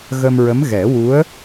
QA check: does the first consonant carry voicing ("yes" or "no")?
yes